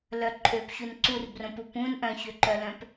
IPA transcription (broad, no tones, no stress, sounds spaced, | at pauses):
l œ ǃʼ ø p ç u n ǀ u r b r õ p u p ũ n ʔ œ̃ ç ø ǃ œ l œ̃ p